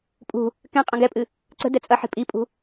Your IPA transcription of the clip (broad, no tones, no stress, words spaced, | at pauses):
pʼṳ | kɛ̃ qʼɐ̃ɡɛpʼɨ | ǀə̤ dɛt͡sʼɐħi̤ pʼipʼṳ